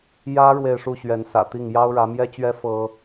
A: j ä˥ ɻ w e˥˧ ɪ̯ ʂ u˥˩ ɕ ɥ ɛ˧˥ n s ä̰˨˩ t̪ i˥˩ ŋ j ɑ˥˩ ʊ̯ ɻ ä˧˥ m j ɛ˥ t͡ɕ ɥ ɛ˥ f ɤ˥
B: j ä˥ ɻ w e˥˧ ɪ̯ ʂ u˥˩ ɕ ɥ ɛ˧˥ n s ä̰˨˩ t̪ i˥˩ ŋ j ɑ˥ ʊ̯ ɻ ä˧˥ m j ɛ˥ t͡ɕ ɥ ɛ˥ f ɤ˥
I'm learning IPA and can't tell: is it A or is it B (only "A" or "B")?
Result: B